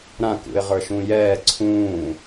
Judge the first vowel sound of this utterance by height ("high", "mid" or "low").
low